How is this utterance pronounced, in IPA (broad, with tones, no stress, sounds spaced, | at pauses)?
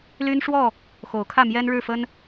l y˦ n ʂ w ɔ˥˨ | x o˨˦ ʊ̯ kʰ ä˥˨ m j ɛ˦ n ɻ ɻ̩˥˨ f ə˦ n